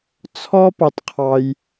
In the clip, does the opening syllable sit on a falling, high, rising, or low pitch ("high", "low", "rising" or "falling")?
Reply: high